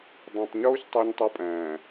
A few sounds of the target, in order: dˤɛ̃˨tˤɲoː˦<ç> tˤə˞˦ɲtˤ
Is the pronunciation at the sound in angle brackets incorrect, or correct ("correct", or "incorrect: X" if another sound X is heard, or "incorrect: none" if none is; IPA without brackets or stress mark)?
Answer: correct